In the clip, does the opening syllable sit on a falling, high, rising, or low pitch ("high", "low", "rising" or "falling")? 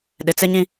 low